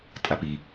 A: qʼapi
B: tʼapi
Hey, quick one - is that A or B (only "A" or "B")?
B